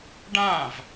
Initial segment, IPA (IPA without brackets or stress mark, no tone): ɖ